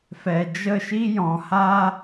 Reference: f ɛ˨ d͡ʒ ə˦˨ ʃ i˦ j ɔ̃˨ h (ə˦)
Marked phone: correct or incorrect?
incorrect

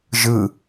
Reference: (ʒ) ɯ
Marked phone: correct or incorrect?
correct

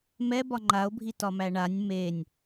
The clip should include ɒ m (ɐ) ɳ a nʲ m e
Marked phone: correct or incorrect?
incorrect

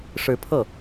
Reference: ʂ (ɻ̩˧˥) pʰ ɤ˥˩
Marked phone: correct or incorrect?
correct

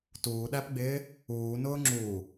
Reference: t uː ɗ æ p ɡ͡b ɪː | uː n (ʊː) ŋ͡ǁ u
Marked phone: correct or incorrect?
correct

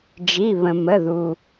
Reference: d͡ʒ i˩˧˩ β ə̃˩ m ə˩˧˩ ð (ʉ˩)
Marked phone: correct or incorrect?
incorrect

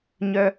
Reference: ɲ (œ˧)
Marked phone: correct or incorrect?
correct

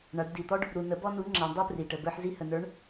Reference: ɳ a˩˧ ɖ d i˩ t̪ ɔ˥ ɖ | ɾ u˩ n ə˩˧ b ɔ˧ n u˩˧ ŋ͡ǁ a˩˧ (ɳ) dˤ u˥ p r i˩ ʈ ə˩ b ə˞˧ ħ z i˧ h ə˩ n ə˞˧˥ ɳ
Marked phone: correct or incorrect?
correct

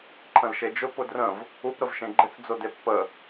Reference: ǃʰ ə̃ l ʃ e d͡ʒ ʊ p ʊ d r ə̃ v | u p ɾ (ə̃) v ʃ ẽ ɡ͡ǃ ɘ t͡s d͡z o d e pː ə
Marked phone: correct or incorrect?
incorrect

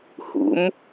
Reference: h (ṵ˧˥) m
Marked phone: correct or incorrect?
correct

